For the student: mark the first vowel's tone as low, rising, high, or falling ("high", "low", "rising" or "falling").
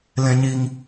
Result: low